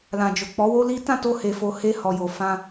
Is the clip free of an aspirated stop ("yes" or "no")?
yes